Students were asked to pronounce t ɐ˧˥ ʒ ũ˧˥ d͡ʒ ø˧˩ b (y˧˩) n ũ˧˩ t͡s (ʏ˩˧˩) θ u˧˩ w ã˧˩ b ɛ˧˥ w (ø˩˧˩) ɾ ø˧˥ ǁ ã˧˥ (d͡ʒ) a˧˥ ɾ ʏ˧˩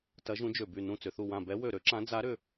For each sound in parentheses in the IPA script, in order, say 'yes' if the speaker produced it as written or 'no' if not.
yes, yes, no, no

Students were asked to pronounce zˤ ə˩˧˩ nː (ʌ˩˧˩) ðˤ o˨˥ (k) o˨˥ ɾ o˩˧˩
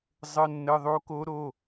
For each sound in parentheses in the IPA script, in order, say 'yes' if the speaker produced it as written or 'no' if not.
no, yes

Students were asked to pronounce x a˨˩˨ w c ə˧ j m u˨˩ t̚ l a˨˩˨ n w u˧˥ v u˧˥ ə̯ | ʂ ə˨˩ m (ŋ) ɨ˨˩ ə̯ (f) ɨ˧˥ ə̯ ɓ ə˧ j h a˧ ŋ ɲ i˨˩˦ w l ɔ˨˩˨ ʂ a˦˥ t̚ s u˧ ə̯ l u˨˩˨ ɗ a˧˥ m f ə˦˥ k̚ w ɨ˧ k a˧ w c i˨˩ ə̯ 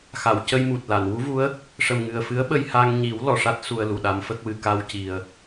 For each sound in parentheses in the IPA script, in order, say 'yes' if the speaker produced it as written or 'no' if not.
yes, yes

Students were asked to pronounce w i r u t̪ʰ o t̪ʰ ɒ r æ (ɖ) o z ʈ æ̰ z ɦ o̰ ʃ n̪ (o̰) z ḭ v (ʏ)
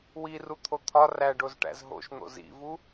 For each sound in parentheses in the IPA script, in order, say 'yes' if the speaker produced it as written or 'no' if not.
yes, yes, no

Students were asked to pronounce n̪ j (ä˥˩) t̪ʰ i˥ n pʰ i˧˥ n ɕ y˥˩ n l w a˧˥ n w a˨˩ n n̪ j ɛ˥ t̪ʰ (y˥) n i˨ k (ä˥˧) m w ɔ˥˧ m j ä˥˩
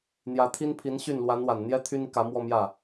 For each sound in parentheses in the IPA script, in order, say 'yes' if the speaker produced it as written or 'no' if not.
no, yes, no

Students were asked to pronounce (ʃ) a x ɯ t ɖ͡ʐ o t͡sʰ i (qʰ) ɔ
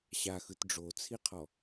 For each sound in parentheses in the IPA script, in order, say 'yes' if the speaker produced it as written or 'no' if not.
no, yes

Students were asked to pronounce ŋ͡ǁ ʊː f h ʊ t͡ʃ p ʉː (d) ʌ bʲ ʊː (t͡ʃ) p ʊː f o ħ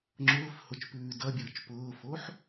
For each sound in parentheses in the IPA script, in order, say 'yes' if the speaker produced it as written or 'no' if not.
yes, yes

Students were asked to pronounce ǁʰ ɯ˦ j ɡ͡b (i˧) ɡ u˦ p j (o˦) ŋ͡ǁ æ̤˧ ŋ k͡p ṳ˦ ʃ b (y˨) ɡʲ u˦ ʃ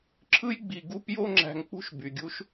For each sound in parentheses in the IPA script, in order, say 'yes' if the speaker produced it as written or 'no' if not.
no, yes, yes

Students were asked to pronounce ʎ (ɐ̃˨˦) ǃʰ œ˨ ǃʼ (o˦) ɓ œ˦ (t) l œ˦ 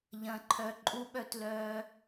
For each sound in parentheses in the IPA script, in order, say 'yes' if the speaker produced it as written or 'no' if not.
no, no, yes

